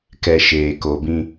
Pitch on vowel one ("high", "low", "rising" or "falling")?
low